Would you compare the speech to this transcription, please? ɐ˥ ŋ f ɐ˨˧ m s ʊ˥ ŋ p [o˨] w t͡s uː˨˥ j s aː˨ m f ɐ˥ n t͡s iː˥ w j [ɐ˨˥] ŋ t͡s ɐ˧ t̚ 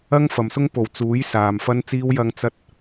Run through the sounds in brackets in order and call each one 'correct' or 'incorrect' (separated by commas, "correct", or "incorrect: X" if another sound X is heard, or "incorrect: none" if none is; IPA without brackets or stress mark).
correct, incorrect: ɐ˧